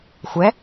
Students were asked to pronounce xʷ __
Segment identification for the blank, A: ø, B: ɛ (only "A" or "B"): B